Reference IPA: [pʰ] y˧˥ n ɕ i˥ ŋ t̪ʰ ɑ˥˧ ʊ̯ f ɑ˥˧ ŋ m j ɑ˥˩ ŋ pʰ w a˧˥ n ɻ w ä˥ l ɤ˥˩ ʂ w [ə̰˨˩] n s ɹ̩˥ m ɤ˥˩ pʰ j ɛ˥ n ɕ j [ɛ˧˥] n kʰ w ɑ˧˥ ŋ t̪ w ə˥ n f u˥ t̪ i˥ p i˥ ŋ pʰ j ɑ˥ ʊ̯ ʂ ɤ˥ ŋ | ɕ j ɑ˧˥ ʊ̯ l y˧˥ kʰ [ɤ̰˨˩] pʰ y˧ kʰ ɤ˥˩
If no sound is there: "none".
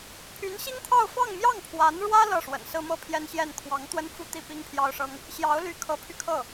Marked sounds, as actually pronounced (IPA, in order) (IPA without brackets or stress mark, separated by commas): pʰ, ə̰˨˩, ɛ˥˩, ɤ˧˥